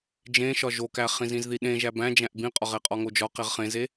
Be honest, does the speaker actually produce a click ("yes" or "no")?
no